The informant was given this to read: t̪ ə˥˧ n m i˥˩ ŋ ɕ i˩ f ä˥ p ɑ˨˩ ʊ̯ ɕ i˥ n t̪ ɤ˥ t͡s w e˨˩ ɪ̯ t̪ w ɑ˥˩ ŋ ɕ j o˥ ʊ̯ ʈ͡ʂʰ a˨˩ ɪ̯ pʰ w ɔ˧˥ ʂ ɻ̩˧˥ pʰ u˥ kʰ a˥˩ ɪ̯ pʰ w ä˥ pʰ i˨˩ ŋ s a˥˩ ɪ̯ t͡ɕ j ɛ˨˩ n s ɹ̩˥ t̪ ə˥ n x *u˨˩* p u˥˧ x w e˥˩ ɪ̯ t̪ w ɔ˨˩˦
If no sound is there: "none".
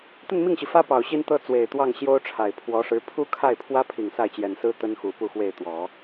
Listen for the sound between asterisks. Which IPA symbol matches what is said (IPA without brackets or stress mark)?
u˨˩